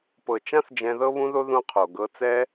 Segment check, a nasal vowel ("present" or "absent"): present